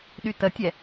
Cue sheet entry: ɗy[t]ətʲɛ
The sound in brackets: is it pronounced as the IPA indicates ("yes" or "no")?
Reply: yes